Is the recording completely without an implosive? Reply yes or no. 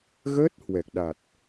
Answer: no